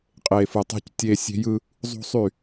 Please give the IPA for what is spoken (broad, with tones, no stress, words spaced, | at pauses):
qʼe˨fɯ˨tˤe̤˦c tʲe˦ sʲe̤˦ jɯ˦ | zˤṳ˦ sˤy˦˨